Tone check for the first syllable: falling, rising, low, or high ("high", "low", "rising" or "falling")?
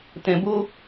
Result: low